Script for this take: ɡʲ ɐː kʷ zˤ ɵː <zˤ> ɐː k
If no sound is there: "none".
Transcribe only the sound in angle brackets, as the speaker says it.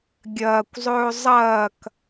zˤ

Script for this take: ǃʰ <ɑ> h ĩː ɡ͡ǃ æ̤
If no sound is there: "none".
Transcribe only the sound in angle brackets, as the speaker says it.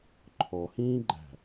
ɔ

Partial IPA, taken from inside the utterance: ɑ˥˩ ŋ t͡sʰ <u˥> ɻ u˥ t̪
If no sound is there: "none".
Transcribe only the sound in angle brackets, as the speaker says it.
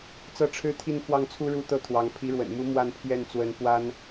u˥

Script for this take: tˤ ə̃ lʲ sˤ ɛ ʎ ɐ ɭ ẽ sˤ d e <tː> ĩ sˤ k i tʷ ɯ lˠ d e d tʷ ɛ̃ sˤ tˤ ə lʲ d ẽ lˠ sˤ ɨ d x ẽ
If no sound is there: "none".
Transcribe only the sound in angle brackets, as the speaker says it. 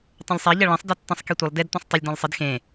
tː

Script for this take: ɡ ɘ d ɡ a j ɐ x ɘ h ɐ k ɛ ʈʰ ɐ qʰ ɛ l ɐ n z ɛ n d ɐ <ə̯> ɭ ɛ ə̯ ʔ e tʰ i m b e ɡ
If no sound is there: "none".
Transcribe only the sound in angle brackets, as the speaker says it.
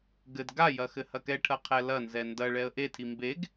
none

